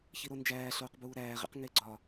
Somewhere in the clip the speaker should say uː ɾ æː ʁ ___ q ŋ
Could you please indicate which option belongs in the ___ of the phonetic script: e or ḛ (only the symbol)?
ḛ